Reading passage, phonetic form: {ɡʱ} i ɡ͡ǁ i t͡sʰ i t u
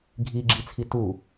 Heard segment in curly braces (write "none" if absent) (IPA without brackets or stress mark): ɡʱ